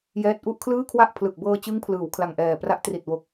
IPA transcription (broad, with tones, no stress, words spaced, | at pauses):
jɛː˥˩t̚ ʔu˥˩ʔkʰlɯː˥˩kʰwa˥˩ʔ pʰlɯ˨˩k̚bɤː˧t͡ɕɯ˦˥ŋpʰlɯː˩˦w kʰla˨˩ŋʔɛː˨˩pra˦˥ʔ tri˨˩t̚wo˨˩k̚